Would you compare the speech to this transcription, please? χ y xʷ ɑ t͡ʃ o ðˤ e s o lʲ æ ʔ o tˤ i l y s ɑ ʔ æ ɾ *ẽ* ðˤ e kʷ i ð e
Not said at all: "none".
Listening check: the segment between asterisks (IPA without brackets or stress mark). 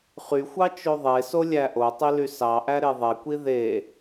e